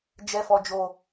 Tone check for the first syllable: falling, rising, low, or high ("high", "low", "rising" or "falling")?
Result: high